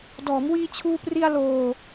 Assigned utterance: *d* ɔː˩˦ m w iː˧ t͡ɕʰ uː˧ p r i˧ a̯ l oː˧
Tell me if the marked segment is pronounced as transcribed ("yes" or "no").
yes